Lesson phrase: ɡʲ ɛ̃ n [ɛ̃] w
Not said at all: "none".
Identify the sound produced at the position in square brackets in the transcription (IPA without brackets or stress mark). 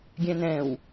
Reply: ɛ̃